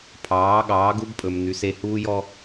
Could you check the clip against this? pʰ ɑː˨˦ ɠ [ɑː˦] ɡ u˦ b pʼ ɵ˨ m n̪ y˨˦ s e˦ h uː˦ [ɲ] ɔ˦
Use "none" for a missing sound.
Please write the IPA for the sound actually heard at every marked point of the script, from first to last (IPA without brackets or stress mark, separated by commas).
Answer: ɑː˨˦, j